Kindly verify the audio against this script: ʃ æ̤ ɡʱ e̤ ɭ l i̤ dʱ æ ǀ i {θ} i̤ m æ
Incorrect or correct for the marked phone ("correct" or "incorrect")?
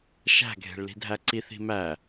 correct